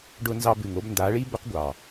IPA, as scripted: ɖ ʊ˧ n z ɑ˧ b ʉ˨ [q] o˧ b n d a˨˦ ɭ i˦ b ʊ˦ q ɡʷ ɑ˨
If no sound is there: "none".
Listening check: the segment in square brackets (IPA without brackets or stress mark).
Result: ŋ